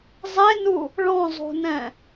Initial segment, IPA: zˤ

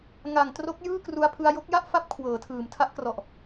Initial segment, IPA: ŋ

